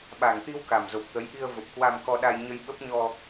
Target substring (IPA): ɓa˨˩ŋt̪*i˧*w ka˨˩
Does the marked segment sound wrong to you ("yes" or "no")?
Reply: no